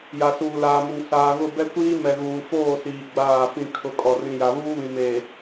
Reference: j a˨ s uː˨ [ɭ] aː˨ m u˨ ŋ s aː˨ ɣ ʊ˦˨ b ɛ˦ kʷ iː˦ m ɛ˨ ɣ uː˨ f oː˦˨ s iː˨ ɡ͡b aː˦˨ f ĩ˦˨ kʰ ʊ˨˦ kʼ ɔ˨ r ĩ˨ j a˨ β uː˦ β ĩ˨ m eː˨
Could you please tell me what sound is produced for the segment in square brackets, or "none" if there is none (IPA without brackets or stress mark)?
l